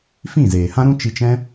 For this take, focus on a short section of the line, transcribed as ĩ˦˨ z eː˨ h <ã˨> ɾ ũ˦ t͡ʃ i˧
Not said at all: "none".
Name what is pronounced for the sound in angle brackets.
ã˦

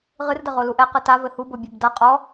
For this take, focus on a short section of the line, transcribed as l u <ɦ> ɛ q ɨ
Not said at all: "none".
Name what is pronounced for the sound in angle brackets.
ʔ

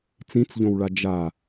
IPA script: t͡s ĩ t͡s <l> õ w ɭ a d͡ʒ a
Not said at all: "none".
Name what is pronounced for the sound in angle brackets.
ʎ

